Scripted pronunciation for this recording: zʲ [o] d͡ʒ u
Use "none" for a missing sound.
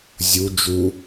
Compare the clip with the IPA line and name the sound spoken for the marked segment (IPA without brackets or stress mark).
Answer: u